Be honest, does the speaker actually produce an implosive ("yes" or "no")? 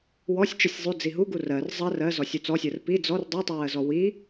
no